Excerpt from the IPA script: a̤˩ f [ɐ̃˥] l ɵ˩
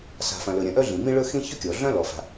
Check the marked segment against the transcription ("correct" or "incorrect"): incorrect